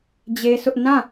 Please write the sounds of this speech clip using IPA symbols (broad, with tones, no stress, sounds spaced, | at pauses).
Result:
d͡ʑ e˦ sʰ ʊ˦ ʔ n ã˦˨